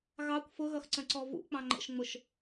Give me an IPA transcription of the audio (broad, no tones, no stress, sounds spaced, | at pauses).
ɣ ɑ kʷ f ʊ ɣ ʌ x ǀ ə̃ ǀ ɔ v ṵ k͡p ɑ̃ ŋ͡ǃ ə̰ ʃ ŋ͡m ʊ ʃ